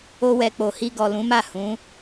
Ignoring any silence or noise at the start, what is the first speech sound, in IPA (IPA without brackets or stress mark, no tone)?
o